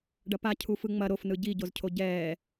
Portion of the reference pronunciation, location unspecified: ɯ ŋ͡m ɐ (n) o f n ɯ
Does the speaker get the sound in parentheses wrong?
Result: yes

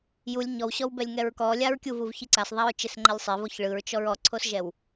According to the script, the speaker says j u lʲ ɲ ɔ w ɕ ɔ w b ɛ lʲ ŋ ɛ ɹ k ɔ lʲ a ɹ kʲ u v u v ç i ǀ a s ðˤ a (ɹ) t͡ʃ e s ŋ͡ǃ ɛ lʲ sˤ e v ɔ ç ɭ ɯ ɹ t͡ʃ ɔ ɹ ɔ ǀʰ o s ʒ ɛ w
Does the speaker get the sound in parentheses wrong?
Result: no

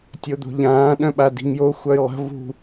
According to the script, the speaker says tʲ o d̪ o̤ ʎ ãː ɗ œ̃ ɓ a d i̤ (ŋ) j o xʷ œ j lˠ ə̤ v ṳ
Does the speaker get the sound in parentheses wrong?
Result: no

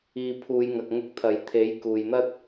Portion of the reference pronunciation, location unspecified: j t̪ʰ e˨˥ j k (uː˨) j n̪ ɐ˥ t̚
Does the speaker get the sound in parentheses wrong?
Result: no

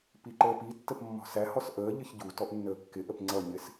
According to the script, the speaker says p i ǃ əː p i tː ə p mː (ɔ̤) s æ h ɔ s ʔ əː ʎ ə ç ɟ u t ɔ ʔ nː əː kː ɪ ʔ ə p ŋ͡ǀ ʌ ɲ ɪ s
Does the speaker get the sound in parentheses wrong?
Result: no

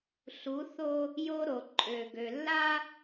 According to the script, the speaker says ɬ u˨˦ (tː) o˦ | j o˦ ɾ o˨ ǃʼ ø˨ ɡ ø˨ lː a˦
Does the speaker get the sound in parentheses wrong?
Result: yes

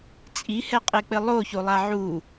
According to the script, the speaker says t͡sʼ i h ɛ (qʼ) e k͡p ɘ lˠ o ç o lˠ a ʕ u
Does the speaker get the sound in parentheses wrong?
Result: no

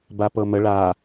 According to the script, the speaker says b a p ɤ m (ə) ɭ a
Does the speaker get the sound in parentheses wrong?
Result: no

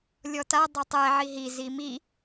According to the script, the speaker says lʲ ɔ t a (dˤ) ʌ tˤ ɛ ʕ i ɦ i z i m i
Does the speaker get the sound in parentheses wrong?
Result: no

